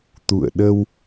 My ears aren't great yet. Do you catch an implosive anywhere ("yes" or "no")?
yes